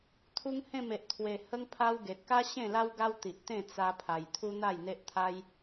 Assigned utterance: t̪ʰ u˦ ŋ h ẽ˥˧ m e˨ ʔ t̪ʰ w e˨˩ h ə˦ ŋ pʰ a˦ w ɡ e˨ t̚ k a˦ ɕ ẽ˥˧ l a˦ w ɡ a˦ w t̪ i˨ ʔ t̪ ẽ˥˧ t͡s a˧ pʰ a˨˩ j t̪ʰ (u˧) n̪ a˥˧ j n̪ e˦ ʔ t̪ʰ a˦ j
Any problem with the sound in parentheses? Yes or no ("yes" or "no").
yes